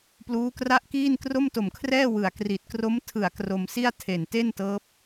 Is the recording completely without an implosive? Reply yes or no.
yes